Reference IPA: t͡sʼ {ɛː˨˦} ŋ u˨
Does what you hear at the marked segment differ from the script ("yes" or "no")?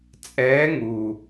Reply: no